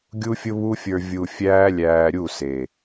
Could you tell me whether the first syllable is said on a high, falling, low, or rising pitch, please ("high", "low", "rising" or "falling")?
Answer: high